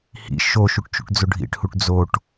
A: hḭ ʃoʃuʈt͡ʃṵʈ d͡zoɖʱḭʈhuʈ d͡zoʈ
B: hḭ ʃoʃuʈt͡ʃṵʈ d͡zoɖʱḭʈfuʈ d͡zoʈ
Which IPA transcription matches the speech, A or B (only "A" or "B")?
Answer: A